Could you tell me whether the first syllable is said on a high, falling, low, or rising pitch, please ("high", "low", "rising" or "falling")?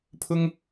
high